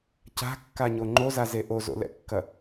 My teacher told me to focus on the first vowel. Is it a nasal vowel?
no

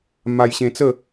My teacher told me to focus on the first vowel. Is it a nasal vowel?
no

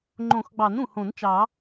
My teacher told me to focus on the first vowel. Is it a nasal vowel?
yes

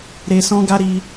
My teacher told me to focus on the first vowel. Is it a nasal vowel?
no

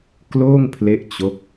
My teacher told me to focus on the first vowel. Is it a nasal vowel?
no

